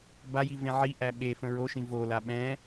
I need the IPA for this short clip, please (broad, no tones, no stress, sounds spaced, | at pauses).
b a j i v ẽ ʕ i ʔ æ ɓ e f ə̃ ɹ o ʃ ĩ v o l a ɓ ɛ̃